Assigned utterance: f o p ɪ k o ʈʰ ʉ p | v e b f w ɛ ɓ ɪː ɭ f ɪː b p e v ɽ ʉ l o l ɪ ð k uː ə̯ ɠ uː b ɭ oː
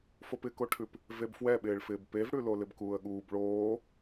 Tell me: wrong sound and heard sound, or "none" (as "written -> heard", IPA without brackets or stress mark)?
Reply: ð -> b